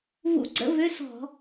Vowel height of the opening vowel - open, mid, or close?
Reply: close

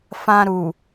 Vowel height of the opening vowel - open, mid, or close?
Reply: open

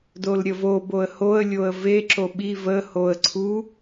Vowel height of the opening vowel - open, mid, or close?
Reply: mid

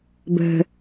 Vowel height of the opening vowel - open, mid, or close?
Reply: mid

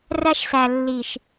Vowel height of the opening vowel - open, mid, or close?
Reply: open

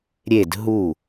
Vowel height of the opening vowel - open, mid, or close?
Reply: mid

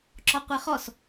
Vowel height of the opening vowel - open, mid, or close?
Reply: mid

